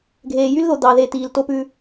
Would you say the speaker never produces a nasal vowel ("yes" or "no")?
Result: yes